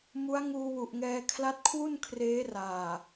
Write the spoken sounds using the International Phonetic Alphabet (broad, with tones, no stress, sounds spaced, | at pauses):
m u˦˥ a̯ ŋ uː˧ w u˨˩ ʔ ŋ ɛː˧ kʰ l a˦˥ t̚ kʰ w u˥˩ n kʰ r eː˦˥ r aː˨˩